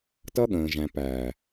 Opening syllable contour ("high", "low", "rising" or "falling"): high